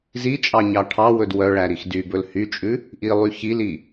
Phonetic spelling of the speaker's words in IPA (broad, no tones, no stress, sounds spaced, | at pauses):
z i t͡ʃʼ ɑ ɲ ɑ ʈʰ ɑ w ɵ d w œ ɭ æ ɾ i x d y b ɵ l h y t͡ʃʼ ʉ | ʔ i lˠ y ç i l i